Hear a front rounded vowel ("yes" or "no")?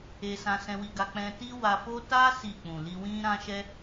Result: no